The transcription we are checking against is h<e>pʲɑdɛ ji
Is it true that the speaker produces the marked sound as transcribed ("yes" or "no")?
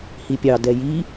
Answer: no